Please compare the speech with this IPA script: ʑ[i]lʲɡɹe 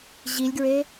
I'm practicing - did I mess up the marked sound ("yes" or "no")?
no